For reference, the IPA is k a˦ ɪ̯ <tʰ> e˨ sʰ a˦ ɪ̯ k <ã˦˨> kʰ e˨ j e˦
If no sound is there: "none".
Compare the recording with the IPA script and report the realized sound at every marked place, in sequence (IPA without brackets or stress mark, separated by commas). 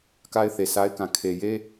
θ, ã˨